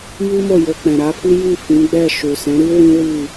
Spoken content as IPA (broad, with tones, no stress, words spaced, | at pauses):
ji˦mo˦˨ jo˧k͡pɛ̃˨ ɾa˨˦fi˦ji˦˨ fĩ˨˦ɡ͡bɛ˦˨ʃu˨ sɛ̃˨˦ɾi˦ wĩ˦wi˦˨